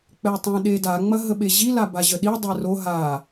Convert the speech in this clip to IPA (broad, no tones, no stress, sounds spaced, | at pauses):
k͡p ɛ tˤ ɛ̃ ɗ e d a ŋ͡m ɐ ɦ ə ɓ e ʑ i l a b a ʑ ə ɗ i dˤ ɛ r o ɦ a